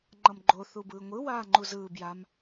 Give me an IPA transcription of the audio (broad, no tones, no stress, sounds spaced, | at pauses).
ŋ͡ǃ ʌ m ɡ͡ǃ o θ u b ɯː ŋʷ ɯ w aː ŋ͡ǃ u z ɯː b j a m